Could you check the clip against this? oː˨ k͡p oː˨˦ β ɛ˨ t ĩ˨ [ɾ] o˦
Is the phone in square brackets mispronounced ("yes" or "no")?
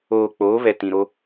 no